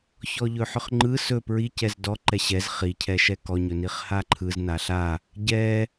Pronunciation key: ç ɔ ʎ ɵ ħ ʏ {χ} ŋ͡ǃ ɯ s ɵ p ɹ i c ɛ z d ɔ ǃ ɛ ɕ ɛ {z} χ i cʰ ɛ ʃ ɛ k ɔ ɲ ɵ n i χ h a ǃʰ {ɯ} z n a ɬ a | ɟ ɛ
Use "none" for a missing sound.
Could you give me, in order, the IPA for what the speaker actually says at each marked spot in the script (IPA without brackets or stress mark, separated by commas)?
χ, z, ɯ